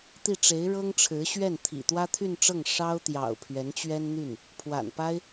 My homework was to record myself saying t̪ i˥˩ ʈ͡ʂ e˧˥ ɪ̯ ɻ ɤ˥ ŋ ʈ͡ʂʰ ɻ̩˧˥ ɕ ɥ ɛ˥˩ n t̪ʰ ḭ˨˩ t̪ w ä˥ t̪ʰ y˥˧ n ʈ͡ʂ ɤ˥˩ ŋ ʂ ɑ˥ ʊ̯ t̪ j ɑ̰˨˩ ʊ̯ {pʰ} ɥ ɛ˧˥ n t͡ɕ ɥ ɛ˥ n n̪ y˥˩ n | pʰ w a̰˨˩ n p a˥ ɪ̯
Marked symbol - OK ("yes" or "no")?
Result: yes